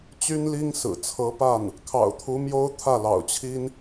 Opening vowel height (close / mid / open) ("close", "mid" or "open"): close